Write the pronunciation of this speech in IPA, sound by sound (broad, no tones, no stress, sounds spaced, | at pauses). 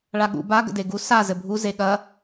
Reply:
ɭ a ɠ ṵ b a ɡ ə̰ d e ɡ u s a z ɘ bʱ u z e ɠ ɐ